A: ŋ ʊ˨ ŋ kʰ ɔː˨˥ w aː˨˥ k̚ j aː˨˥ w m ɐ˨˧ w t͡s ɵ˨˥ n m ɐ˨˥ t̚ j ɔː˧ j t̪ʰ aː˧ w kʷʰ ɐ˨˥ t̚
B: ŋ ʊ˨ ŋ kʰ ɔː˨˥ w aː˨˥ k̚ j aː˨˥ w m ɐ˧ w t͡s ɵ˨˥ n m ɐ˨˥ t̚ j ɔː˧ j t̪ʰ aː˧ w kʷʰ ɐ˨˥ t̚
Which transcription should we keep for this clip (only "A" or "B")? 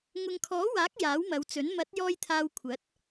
A